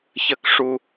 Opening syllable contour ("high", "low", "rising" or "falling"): falling